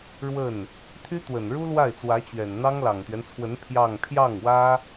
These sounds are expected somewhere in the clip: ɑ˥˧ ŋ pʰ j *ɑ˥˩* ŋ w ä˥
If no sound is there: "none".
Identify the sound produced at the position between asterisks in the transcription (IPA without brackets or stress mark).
ɑ˥˩